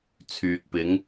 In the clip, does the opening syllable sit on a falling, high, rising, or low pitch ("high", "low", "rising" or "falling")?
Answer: low